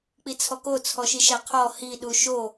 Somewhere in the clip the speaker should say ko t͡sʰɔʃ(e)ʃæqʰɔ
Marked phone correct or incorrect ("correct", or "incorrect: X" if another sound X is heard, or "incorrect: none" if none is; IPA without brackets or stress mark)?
incorrect: i